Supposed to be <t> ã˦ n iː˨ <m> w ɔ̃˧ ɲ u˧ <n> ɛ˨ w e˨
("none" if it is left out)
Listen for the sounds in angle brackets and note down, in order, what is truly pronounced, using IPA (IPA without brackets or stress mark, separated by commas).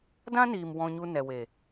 d, m, n